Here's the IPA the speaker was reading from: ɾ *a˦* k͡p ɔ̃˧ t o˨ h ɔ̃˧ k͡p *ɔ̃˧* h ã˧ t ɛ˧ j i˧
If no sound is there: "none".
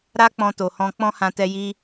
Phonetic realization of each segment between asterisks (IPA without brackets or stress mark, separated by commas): a˦, ɔ̃˦